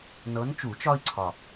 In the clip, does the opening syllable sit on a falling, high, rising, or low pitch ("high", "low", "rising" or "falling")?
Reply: rising